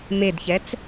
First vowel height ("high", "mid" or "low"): mid